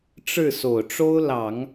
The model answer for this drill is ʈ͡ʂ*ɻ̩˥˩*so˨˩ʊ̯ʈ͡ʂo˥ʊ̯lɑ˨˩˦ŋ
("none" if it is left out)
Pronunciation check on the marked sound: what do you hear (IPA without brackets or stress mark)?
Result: ɻ̩˥˩